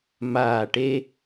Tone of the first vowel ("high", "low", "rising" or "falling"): low